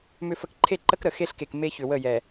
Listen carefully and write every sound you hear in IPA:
m ʏ˨ f ə˨ k ǃʰ e˦˨ ǃ ə˦ k ɾ ə˨ x e˦ ɬ k e˨ k m e˦ ç ʏ˨ w ə˦˨ j ɛ˨

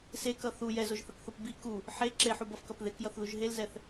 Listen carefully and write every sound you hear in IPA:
s e k ʌ θ u j ɛ z o ʒ θ ʌ k θ o p b i k u | ħ e ǁ e ħ u b ʌ f k ʌ p ð e k j ʌ θ ð u ʒ ɦ e l z ɛ θ

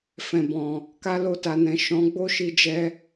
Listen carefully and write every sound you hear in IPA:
f ɛ̃˨ b ɔ̃˨ | k a˧ l o˧ t a˨ n ɛ̃˨ ʃ ɔ̃˨˦ ɡ͡b o˦ ʃ i˧ d͡ʒ ɛ˧

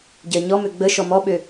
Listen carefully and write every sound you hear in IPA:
ɟ ɜ ɲ ɔ m ø ɡ͡b ə ʃ ɔ m ɔ ɓ ø

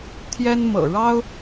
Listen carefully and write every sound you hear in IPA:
t̪ʰ j ɛ˦ n m ɤ̰˨˩ ɻ ɑ˦ ʊ̯

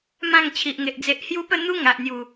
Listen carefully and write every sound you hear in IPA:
m ã˥˧ ŋ t͡ɕʰ i˨ ʔ ŋ e˨ ʔ d͡z e˦ ʔ h j u˦ p ə˥˧ n̪ u˦ ŋ a˨ ʔ n̪ j u˨˩

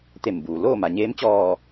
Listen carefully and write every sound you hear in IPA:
t̪ e˧˩ m b uː˩ l oː˥˨ m a˩ ɲ eː˧˥ m t͡ɕ ɔː˧˩

